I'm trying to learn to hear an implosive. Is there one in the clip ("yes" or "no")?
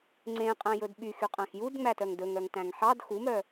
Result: yes